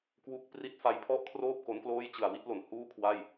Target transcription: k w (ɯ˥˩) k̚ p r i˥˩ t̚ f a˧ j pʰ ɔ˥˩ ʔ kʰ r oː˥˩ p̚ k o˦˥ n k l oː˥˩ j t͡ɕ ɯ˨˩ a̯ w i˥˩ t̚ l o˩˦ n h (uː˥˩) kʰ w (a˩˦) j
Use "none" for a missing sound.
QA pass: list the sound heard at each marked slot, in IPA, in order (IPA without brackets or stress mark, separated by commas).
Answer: u˥˩, uː˥˩, a˥˩